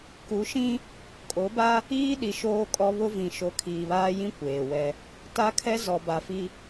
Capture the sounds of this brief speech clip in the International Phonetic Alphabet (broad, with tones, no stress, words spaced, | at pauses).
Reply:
ku˨˦ʃĩ˦ | kʼo˨˦ba˦ | iː˦ ɗi˨ ʃoː˦kʼɔ˦ βʊ˦vĩ˨ ʃo˨˦kʰiː˨βaː˦jĩ˦ kʷeː˨wɛ˦ | ta˦kʰɛ˦ zɔ˨ba˨fi˦